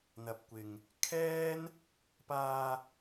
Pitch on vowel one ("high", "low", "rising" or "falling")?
low